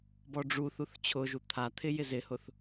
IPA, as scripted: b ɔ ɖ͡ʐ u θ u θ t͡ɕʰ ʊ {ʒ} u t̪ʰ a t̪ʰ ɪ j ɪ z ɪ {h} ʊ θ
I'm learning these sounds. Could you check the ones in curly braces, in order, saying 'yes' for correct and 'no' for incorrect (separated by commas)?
yes, yes